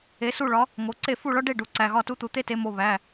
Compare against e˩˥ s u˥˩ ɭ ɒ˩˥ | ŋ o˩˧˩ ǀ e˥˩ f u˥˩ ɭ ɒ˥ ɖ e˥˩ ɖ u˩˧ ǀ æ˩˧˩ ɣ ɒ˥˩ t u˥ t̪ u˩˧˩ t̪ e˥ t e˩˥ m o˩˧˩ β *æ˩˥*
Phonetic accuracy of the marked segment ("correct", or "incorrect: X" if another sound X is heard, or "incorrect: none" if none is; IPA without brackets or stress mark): incorrect: æ˩˧˩